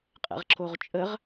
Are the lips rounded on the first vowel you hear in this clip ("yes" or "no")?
no